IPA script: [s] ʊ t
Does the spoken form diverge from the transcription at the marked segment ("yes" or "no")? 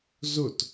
yes